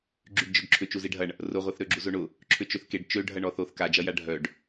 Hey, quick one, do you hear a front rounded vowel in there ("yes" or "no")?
yes